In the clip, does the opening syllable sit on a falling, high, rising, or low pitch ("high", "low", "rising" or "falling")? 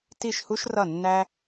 falling